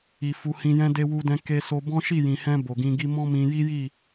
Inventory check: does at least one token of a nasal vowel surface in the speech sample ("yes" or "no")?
yes